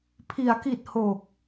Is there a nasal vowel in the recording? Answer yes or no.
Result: no